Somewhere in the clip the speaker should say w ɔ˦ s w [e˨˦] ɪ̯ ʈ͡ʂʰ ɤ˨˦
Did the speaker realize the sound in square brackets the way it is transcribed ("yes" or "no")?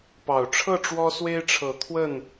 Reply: no